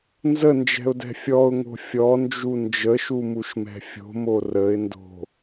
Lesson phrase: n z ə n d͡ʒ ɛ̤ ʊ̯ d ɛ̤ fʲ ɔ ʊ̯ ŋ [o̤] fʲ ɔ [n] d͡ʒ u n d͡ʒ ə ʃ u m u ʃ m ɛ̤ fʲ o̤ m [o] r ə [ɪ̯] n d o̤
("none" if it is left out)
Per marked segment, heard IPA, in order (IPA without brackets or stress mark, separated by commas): o̤, n, o, ɪ̯